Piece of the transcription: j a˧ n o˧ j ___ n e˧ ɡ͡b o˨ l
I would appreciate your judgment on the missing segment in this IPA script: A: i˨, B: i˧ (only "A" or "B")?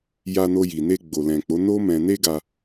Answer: A